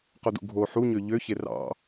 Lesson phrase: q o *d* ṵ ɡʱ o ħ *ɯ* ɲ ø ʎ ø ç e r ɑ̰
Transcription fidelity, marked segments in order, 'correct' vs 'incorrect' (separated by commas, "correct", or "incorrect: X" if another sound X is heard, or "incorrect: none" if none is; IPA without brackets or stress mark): correct, incorrect: u